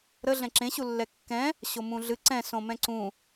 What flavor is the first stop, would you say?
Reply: click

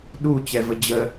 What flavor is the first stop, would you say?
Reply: implosive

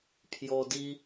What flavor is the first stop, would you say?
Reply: aspirated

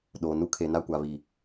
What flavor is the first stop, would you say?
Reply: implosive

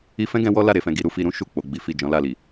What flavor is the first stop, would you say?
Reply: plain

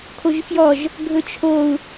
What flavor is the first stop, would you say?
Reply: aspirated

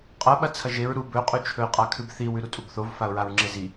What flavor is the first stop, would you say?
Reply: ejective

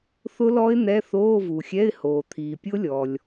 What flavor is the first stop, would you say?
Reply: aspirated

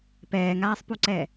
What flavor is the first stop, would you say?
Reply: plain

